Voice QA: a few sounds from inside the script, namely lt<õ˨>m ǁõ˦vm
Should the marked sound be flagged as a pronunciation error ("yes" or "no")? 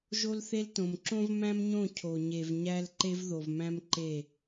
no